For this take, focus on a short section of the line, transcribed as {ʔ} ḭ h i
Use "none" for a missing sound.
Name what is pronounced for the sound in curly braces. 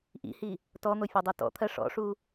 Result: ʔ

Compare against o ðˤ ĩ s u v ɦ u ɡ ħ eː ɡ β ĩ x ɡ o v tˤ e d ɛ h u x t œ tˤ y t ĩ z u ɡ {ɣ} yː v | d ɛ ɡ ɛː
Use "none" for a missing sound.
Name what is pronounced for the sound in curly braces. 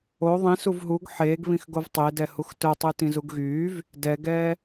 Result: ɣ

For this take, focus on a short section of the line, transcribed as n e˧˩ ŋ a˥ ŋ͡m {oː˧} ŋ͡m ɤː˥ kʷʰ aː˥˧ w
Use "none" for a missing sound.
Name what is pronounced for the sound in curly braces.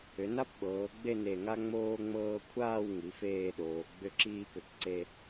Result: oː˥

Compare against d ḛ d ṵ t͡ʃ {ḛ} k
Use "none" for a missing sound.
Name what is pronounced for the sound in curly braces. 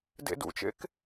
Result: ḛ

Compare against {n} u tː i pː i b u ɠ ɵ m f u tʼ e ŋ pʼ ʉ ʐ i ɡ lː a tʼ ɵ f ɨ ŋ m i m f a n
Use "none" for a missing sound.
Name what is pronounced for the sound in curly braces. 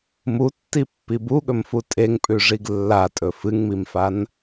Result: m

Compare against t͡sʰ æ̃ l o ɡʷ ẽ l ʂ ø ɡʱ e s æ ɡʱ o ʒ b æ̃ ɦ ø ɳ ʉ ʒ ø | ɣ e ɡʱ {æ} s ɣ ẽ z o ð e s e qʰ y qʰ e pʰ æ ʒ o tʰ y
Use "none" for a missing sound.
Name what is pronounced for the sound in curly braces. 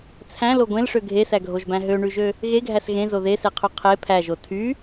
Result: æ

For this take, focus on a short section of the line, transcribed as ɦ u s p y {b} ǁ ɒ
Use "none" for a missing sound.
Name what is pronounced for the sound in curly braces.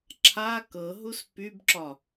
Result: b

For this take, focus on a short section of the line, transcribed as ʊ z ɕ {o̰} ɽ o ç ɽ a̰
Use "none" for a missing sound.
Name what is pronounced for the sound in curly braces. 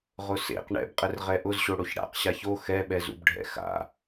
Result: o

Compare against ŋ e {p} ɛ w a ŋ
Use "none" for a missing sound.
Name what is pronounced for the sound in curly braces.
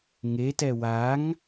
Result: t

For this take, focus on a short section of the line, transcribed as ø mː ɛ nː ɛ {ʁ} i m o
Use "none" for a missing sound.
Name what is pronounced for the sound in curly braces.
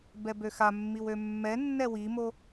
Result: w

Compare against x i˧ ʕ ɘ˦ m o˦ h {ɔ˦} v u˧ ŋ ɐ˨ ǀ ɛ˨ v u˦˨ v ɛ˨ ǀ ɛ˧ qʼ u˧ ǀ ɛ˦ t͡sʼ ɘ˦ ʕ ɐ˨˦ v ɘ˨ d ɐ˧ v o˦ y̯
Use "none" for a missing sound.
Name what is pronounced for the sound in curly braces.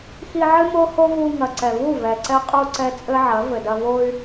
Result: o˦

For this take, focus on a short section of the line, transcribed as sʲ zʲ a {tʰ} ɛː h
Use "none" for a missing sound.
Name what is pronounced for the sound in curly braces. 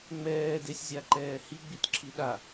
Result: ǃ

